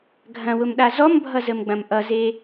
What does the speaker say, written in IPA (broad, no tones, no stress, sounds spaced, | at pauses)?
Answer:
ɡʱ ɐ̃ w ʊ m ɗ a z ɔ m bʱ ʌ z ə m ɡ͡b ɐ̃ m ʔ ʌ z e